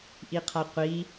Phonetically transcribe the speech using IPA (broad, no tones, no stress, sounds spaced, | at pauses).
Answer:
ʔ i qʰ a qʷ i